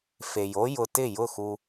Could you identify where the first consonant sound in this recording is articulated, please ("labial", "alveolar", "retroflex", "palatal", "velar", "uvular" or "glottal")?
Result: labial